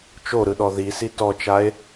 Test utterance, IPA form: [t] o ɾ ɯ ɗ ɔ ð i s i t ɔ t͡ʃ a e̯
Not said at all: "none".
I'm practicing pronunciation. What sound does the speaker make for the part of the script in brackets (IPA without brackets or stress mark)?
t͡ʃ